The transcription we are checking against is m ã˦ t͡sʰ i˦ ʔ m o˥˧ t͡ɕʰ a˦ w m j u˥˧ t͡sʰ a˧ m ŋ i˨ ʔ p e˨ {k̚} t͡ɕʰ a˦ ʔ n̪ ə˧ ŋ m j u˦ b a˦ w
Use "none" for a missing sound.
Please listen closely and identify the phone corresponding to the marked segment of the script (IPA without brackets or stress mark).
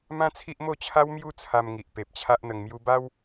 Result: p̚